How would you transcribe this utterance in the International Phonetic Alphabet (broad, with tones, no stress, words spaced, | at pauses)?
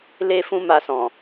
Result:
le˦fũ˦ ma˧sɔ̃˨